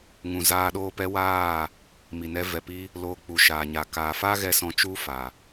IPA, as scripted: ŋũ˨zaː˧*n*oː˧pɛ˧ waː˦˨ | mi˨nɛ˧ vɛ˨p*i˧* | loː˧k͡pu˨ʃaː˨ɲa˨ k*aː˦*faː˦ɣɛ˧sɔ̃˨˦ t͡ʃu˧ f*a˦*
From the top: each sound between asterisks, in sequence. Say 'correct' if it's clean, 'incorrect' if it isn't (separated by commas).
incorrect, correct, incorrect, incorrect